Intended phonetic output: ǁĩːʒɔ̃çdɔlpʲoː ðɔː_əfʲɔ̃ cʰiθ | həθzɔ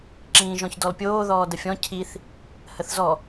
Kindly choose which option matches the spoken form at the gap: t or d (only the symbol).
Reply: d